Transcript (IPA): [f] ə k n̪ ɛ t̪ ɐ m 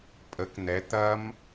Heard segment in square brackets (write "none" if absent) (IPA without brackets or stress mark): pʼ